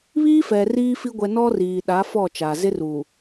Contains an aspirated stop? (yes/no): no